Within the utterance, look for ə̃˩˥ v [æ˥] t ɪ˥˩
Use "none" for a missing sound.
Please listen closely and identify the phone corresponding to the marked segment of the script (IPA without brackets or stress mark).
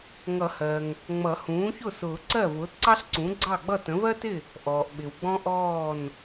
ɜ˥